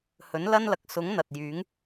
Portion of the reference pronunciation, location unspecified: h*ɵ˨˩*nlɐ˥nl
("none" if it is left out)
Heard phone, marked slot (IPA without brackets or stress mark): ɵ˨˥